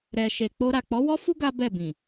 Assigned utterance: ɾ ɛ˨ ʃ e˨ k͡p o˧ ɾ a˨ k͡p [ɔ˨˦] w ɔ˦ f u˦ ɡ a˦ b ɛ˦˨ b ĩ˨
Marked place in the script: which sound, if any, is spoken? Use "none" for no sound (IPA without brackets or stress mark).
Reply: ɔ˨˦